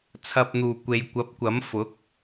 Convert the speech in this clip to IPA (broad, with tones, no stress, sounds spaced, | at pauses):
t͡sʰ ɐ˨ p̚ n̪ uː˨˩ kʷ e˨ j kʷ ɐ˨˥ p̚ kʷ ɐ˨˥ m f ʊ˨˥ k̚